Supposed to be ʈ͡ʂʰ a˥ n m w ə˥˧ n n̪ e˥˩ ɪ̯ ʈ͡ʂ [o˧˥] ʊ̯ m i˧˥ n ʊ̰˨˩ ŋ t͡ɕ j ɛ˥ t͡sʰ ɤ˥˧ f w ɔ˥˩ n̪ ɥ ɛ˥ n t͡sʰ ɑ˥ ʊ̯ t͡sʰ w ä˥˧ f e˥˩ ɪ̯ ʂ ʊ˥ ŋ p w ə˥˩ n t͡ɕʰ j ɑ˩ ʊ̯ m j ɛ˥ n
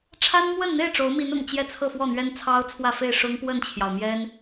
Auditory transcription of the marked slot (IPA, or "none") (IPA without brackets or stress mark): o˧˥